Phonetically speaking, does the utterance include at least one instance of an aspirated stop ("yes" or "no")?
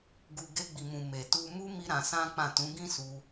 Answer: no